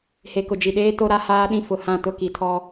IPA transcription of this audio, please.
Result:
he˨kʊ˨d͡ʒi˨ɗeː˦ to˦ɾa˦haː˦ɗĩ˦ fʊ˨hã˦˨ tʊ˦˨ki˨tʰɔ˦

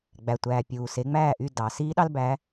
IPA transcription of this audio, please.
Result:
ɡ͡bæ˩tʷæː˩ pʲuː˩ se˩˥ŋ͡mæː˥˩ʔy˥˩ dɑ˩ siː˥ɗɑ˥lbæ˩˥

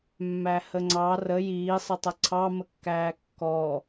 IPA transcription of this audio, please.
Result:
mːæhəŋ͡ǀɑ rə jiːsˤətˤɐ ǀʰɑməkːæː kːɔ

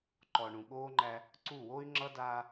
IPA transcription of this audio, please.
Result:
ǃɔ˨ɳũ˨ɠoː˦ŋ͡ǃæ˦ | ǀu˦˨wo˦y̯ ŋ͡ǁʌ˦daː˦

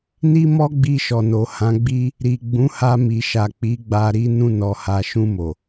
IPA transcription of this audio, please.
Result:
ni˦mɔ˦ ɡ͡bi˧ʃɔ˨no˨ hã˨˦ɡ͡bi˦ | ɾi˨ ɡ͡bũ˨˦ha˧mi˨ʃa˨ k͡pi˨˦ɡ͡ba˧ ɾi˦ nũ˧nɔ˨ha˨ ʃũ˧mo˨

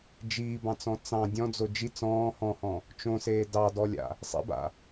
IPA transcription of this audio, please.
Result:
d͡ʒiːbɑ̃t͡sɔ̃ t͡sɑ̃ dʲɔ̃d͡zo d͡ʒi t͡sɔ̃ː hɔ̃hɔ̃ | t͡ʃõseː dɑdɔlʲa̰ | sˤḛba̰

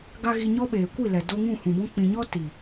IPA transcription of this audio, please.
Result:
ɡa˦ɣi˧ɲɔ˦ɓeː˨ kʷi˦˨lɛ˨do˧ ŋũ˦˨hũ˨bɔ̃˦ k͡pĩ˨ɲɔ˦ ti˨

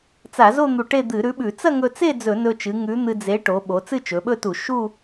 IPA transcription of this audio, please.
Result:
t͡sa˧˩˧zo˥˧ n̪u˧ʈe˥˧d̪ɨ˧˩˧ ɾʉ˨˥ɓʉ˧˩˧ t͡sɐ˥˧ŋɵ˧t͡se˥˧ d͡zɵ˧˩˧nɵ˧t͡ʃɨ˩˧ ŋʉ˨˥n̪ɨ˧ d͡ze˨˥ʈo˩˧ ɓo˩˧t͡sɨ˥˧t͡ʃɵ˩˧ɓɵ˥˧ tu˧˩˧ ʃu˥˧

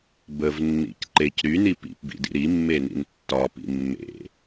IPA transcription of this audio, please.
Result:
bəvnːḭc ǃec ɾyni pḭpbḭdḭ ɾimːenḭn tːɒpḭ mːḛ

